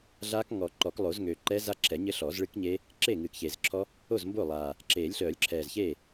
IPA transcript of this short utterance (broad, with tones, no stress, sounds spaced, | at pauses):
ɮ aː˦˥ k ŋ ɔ˨˩˦ ǃ ɔ˨˩˦ k lˠ o˨˩˦ z ŋ ø˨˩ ǃ ɛː˦˥ z a˦˥ ǁʰ ɛ˨˩˦ ɲ ɘ˦˥ ɬ ɔː˨˩˦ z ɭ ɨ˦˥ k ɲ e˦˥ | ǁ eː˥˩ ŋ ɨː˨˩ k ç eː˨˩ z ǁʰ ɔ˦˥ | o˥˩ z m b o˥˩ lˠ aː˨˩ | ǁ eː˨˩˦ lʲ ɬ œː˨˩˦ lʲ ǁʰ ɛː˨˩ z ç e˥˩